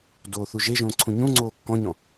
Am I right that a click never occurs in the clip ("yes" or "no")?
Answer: no